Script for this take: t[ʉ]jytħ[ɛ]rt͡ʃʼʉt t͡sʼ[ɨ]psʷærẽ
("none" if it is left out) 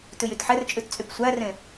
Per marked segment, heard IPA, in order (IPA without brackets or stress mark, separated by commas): ʉ, ɛ, y